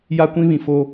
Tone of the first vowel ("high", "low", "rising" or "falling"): high